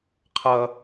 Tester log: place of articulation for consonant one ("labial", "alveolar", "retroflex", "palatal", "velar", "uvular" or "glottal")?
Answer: uvular